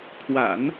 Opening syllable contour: low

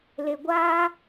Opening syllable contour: low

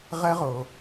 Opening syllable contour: high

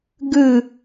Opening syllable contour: falling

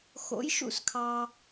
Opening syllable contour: rising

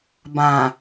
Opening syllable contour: low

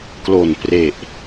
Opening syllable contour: low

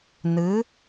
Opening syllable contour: rising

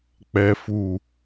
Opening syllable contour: low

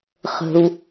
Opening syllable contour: low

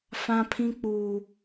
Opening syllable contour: high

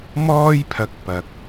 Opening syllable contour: high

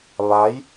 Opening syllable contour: rising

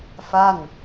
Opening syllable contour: falling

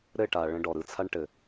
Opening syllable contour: falling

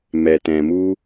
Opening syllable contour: low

